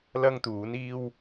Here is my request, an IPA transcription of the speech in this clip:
l ɐ˥ ŋ t̪ uː˨˥ n iː˥ w

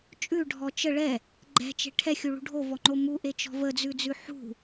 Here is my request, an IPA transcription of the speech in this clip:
t͡ʃʼ ʉ ɖʱ ɔ t͡ʃ ə ɭ ɛ | ɡ͡ǃ ɛ̤ t͡ʃ e̤ ʈʰ ɛ xʲ u ɭ ṳ ɖʱ o v ɔ ŋ͡ǃ o m u ʔ e t͡ʃ ɔ̤ v ə d͡z ʉ d͡z ʉ ħ ṳ

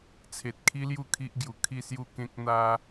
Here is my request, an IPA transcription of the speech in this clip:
t͡sʰ e˨ t̚ kʰ i˦ l j u˥˧ kʰ i˦ ʔ ɡ j u˨˩ kʰ i˥˧ s j u˥˧ k ẽ˦ k̚ n̪ a˦

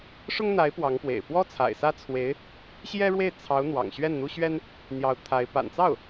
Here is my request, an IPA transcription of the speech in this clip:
ʂ ʊ˥ ŋ n̪ a˧˥ ɪ̯ p w ɑ˧˥ ŋ p w ḛ˨˩ ɪ̯ p w ɔ˥ t͡sʰ a̰˨˩ ɪ̯ s ä˥ t͡sʰ w e˧˥ ɪ̯ | ɕ j ɛ˥ ɻ w e˥˩ ɪ̯ t͡sʰ ɑ˧˥ ʊ̯ n̪ w ɑ̰˨˩ ŋ ɕ ɥ ɛ˥˩ n n̪ u˥ ɕ ɥ ɛ˥ n | n̪ j ɑ˧˥ ʊ̯ t̪ʰ a˧˥ ɪ̯ p a̰˨˩ n t͡s ɑ˥˩ ʊ̯

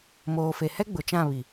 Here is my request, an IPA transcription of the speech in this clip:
m oː˨ f e˨ h ɛ˦ ɡ͡b ʊ˨ t͡ʃ ã˦˨ β i˨

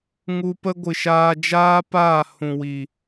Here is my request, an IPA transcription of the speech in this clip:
ŋ u˧ p ə˦ ɡʷ ɨ˨ ʃ aː˧ d͡ʒ aː˦ p aː˦˨ h ũ˨ w i˨

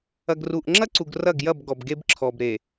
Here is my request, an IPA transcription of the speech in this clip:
ɐ˨ ɡ r u˨ ʔ ŋ͡ǁ ɐ˦ ǀ u˨ ɡ r ɐ˦˨ ɡ j ɐ˦˨ b ɡ ɔ˨ b ɡ e˦ b ǁʰ ɔ˨ b ɾ e˨

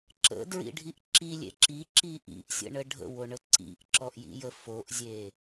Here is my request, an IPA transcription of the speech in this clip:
ǁ ə̰ d ɹ ḭ ɖʱ i ʔ ǁ i lʲ ḛ ǁ i ǁ i ʔ ḭ ʔ sʲ ə̰ ɳ ə ɖʱ ə̰ w o ɳ ə ǀ ḭ ʔ ǁ ɔ ʔ j ḭ j ə f o ʔ zʲ e

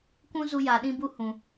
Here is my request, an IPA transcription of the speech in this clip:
kʷ ũ˦ z u˦ j aː˧ ɗ ĩ˦ b u˦ h ũ˨

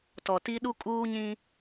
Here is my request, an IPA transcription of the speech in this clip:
t ɔ˨ t i˦ ɗ u˦ kʼ uː˦ ɲ ĩ˦

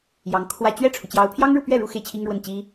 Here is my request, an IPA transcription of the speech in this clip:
j ɑ˧˥ ŋ kʰ w ä˥˧ t͡ɕ ɥ ɛ˥˩ ʈ͡ʂʰ u˩ t͡ɕ j ɑ˧˥ ʊ̯ pʰ j ɑ˥ ŋ ɻ u˥˧ p ɥ ɛ˥˩ ɻ u˥ x e˥˩ ɪ̯ t͡ɕʰ i˥ ŋ ɻ w ə˥˩ n t͡ɕ i˥

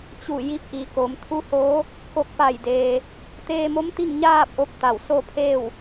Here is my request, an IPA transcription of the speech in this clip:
t͡ɕ u˧˩ j i˧˥ p̚ ʔ i˩ k o˩˧ m t̪ʰ u˧˥ h oː˧˥ | k o˧˩ k̚ p a˧˩ j d eː˩ | t̪ eː˧ m o˧˥ m t̪ i˥˨ ŋ ɲ aː˥˨ p̚ ʔ o˧ p̚ t̪ a˧˩ w s o˥˨ pʰ eː˥˨ w

